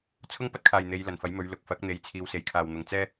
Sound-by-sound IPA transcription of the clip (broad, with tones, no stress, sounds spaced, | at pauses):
t͡sʰ ʊ˥ ŋ p ɐ˥ t̚ kʰ aː˨ j n̪ e˨˧ j l ɐ˨˩ n f ɐ˨˥ j m ɵ˨˧ ɥ l ʊ˨ k̚ f ɐ˨˥ k̚ n̪ e˨ j t͡sʰ iː˨˧ w s e˨˩ j kʰ aː˨ w n̪ ʊ˨ ŋ t͡s ɛː˥